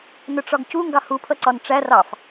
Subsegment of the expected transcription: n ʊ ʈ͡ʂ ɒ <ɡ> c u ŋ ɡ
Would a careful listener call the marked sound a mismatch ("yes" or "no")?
no